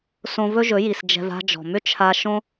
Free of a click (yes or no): yes